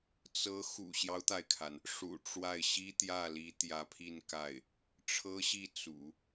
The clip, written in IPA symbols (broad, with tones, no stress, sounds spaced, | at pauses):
t͡s ɤ˧˥ x ṵ˨˩ ɕ j ɑ˦ ʊ̯ t̪ a˩ ɪ̯ kʰ a˩ n | ʂ ṵ˨˩ ʈ͡ʂ w a˥˩ ɪ̯ ɕ i˥ t̪ j ä˥˩ l i˧˥ t̪ j ä˧˥ pʰ i˥˧ n k a˥˩ ɪ̯ | ʈ͡ʂʰ ɤ˥ ɕ i˥˩ t͡s ṵ˨˩˦